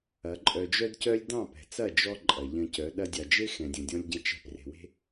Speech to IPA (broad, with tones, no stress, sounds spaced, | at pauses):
ɐ˨˦ ǃʼ œ˧ d͡ʒ œ˦ d c œ˦ lʲ d ɑ̃˦˨ p ɛ̤˨ t͡s ɐ˦˨ d͡ʒ ɔ˦ ǃʼ ɐ˨ ʎ ɐ̃˧ c œ˨˦ ɗ ɐ˧ dʲ ɑ˨ d͡ʒ e˦ x ɛ̃˨ dʲ ɐ̃˨ dʲ ɔ̃˧ lʲ ɟ ɐ̃˧ t͡ʃ ɛ̤˧ p r e̤˨ w e̤˦